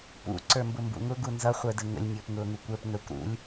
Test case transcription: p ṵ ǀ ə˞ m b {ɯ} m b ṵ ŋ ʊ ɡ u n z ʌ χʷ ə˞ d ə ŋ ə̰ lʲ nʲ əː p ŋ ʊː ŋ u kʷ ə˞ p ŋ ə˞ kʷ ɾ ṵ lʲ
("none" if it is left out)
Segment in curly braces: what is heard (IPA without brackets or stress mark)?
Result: ʊ